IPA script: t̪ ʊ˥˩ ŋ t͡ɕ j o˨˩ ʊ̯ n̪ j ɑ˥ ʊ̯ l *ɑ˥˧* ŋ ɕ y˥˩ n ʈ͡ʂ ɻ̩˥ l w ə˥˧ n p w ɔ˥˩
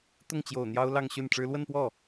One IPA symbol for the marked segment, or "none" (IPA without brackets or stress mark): ɑ˥˧